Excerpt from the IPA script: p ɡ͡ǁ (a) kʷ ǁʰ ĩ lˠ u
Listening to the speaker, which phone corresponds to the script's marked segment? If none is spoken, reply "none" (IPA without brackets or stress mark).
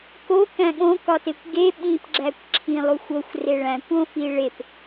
æ